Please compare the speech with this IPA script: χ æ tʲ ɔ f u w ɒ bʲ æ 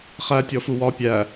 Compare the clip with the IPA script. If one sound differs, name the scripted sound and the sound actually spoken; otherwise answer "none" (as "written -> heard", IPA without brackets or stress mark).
bʲ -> pʲ